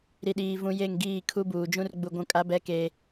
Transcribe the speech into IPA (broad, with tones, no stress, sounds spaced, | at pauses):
ɾ i˨ ɗ iː˨ v ũ˨ j e˦˨ ŋ ɡ iː˦˨ kʰ u˦ b uː˨ d͡ʒ ũ˦ r ɡ͡b u˨ ɡʷ ũ˨ kʼ a˨˦ b ɛ˨˦ k eː˨